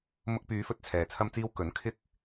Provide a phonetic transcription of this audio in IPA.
m ʊ˧ k̚ p yː˨˧ f ɵ˥ t̚ t͡sʰ ɛː˨ t͡sʰ ɐ˥ m t͡s iː˥ w k ɵ˨˥ n kʰ ɪ˥ k̚

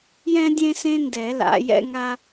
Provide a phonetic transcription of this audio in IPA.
j ɛ̃˥ dʲ ẽ˥ s ẽ˥ n d ɛ˨˩˦ l a̰˨˩˦ j ɛ̰˥ ŋ a˥

